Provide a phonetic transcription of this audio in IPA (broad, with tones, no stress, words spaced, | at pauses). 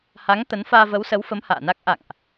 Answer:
ha˨˦ŋ t̪ə˨˦n faː˧və˨˦wsə˨˦wfə˨˦m ha̰ː˧˨na˦˥k̚ ʔa̰˧˨ŋʔ